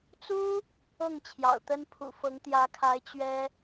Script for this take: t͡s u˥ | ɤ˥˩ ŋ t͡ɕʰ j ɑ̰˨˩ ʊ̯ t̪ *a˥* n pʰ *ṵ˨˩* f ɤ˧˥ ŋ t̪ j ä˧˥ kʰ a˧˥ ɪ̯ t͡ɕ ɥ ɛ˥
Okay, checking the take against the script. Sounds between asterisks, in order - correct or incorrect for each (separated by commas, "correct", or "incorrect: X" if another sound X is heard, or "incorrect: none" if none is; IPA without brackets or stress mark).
incorrect: ə˥, correct